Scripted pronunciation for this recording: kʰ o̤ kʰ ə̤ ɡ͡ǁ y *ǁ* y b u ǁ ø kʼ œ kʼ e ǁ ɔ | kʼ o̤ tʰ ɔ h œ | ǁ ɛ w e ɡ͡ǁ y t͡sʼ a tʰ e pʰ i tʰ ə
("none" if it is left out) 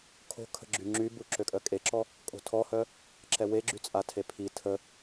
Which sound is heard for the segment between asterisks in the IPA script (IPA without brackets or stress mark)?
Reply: ŋ͡ǁ